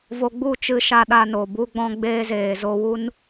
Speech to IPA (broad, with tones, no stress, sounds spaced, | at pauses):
v o˨ ɡ͡b u˦˨ t͡ʃ ɨ˧ ʃ a˧ ɗ a˧ n o˨ b u˧ ɡ͡b ɔ̃˧ ɡ͡b eː˧ z eː˨ z o˧ w u˦ n